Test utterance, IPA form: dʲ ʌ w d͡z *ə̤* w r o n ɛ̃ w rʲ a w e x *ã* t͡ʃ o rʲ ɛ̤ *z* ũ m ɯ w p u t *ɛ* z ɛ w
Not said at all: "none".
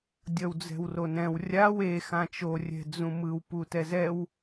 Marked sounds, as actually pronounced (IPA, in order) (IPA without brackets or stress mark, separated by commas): ɛ̤, ã, d͡z, ɛ